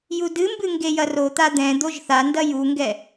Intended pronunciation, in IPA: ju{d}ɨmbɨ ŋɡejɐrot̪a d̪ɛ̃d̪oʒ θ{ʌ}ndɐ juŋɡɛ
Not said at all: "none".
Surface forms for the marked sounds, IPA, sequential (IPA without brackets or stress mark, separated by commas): d, a